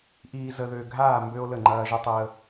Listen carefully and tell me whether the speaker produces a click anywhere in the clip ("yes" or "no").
yes